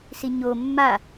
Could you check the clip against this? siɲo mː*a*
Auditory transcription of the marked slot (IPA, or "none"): a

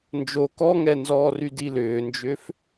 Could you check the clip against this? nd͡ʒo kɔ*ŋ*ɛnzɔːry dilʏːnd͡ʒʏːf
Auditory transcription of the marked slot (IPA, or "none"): ŋ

